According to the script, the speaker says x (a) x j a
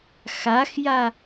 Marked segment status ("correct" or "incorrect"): correct